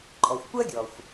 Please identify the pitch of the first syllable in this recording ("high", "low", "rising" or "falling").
low